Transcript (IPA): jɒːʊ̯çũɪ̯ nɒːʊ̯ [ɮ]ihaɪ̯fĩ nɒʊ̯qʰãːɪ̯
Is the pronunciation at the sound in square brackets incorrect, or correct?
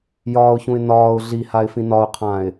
correct